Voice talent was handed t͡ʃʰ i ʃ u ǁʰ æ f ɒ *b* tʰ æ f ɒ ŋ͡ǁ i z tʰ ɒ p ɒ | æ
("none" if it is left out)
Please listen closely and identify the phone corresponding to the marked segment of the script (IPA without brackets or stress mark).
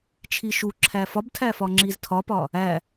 b